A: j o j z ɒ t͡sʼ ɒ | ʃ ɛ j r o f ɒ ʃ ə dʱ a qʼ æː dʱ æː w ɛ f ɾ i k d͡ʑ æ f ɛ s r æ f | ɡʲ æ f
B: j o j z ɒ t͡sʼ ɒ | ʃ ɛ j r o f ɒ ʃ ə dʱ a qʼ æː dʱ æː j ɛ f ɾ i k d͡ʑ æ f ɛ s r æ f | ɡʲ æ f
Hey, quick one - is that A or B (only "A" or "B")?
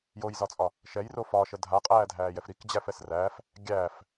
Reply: B